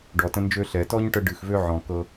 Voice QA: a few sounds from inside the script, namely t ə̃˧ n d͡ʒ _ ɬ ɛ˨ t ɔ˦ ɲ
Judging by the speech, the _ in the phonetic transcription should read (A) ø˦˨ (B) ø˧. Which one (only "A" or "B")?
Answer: B